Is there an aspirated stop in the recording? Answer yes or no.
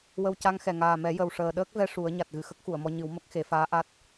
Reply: no